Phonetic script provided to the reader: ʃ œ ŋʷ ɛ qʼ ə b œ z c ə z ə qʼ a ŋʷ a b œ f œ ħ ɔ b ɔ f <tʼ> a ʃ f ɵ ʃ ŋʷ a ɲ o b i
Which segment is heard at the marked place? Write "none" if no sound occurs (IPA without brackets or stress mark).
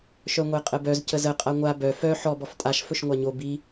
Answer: tʼ